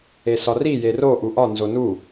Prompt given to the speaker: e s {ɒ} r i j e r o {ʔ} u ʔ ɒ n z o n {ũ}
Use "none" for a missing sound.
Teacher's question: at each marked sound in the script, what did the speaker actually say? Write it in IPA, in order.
ɒ, ʔ, u

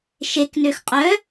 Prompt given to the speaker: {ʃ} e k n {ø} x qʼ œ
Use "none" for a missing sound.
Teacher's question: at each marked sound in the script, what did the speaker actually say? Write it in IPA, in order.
ʃ, ø

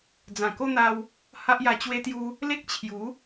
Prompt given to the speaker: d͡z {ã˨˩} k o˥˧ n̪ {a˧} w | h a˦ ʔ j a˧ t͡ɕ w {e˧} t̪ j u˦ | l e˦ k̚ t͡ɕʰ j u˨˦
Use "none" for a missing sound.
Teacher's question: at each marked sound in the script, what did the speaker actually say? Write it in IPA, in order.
ã˨˩, a˧, e˦

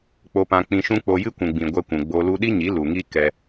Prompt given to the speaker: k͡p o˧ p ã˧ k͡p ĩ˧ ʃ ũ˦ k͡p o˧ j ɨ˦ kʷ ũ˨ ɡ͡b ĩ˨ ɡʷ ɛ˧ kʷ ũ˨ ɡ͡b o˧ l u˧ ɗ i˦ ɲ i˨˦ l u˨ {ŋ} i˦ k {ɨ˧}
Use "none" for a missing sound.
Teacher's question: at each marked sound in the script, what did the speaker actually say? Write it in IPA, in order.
ŋ, ɛ˧

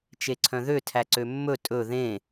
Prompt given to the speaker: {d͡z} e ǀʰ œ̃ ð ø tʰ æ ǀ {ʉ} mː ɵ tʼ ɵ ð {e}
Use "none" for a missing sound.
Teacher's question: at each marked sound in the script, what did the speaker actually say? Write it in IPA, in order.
t͡ʃ, ø, ẽ

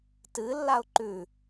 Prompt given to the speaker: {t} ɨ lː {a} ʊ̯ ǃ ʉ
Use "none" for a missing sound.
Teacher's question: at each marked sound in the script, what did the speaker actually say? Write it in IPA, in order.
t, a

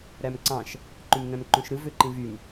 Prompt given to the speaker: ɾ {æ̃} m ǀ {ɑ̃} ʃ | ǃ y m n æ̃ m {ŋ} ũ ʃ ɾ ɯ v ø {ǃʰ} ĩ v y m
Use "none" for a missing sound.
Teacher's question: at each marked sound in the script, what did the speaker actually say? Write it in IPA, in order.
æ, ɑ̃, ǃ, ǃ

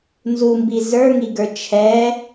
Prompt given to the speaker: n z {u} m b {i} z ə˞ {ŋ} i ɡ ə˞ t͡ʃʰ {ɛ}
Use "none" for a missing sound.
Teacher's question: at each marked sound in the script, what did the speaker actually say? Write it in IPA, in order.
u, i, ŋ, ɛ

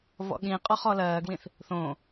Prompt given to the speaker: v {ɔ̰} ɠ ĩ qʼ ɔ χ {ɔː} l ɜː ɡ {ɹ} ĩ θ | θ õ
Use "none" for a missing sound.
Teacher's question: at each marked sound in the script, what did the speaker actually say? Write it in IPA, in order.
ɔ̰, ɔ, w

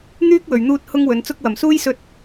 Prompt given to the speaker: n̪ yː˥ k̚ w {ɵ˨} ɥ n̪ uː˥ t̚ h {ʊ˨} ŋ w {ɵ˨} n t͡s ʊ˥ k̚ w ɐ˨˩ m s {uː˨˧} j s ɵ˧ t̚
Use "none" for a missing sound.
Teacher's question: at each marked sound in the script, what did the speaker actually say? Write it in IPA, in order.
ɵ˨, ʊ˥, ɵ˨˧, uː˥

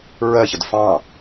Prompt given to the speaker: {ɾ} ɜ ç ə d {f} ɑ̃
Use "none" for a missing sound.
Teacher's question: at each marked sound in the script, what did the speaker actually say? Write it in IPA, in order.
ɹ, f

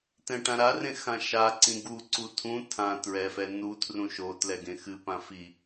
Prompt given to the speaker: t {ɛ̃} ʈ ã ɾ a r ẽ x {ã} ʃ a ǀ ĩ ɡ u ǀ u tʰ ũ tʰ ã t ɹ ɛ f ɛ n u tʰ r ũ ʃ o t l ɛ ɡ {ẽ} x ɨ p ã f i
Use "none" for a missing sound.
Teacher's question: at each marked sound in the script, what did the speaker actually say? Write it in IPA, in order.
ɛ̃, ã, ẽ

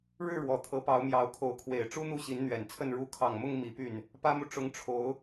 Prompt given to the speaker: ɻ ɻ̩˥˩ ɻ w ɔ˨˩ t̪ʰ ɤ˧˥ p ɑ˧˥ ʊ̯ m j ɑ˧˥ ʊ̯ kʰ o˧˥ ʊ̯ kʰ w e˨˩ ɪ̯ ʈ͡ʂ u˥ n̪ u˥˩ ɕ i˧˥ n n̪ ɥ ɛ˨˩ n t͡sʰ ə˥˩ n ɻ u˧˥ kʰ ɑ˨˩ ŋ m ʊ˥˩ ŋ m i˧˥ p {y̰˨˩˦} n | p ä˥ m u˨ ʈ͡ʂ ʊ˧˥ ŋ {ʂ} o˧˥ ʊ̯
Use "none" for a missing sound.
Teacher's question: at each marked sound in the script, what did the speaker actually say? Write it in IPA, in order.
y˥˩, ʈ͡ʂʰ

